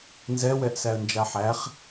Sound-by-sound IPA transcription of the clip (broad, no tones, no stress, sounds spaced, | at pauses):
n z ɛ w ɛ ʔ s æ ə̯ n d͡ʒ a ħ æ χ